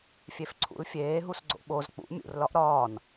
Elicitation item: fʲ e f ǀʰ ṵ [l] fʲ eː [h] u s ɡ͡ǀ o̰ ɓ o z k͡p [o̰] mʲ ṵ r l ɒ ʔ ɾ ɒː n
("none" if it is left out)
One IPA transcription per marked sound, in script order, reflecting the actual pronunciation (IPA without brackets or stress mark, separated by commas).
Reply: l, ɦ, ṵ